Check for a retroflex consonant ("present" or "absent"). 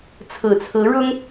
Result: present